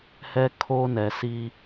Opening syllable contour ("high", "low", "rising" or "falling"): high